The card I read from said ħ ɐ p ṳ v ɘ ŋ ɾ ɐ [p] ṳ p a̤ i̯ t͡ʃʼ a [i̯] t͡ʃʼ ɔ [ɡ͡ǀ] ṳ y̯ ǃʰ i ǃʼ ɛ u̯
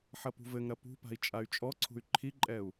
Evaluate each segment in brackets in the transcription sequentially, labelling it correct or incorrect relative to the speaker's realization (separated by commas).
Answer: correct, incorrect, incorrect